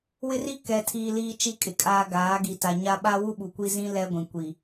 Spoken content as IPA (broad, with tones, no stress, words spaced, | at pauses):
wɪ˦ri˦ kɛ˨tʰiː˨ liː˦t͡ʃi˦kʼɪ˨kʼaː˦ ɡaː˨˦ɡi˨ ta˨ɲa˦ ɓa˦wu˦ ɓu˨kʷi˦zĩ˦ lɛ˦ɡʷĩ˨ kʷi˨